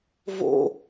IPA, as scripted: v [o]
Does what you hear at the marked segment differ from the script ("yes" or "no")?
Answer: yes